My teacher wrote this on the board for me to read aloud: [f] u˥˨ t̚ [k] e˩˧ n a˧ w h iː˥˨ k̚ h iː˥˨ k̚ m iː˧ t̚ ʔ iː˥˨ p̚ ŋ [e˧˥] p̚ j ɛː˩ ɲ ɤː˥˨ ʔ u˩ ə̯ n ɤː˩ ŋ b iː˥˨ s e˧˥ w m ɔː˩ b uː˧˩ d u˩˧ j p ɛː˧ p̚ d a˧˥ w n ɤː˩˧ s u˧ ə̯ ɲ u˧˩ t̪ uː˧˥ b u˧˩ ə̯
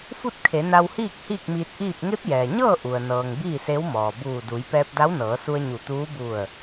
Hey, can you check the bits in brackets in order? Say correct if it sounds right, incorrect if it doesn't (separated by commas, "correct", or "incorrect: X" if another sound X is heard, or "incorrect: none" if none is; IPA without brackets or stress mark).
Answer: correct, incorrect: kʰ, correct